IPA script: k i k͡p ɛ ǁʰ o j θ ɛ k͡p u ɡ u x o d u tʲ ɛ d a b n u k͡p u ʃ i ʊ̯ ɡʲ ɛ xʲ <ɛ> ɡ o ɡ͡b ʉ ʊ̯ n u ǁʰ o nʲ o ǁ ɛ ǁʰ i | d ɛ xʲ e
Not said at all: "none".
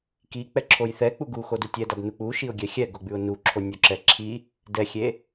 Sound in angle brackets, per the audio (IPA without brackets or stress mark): ɛ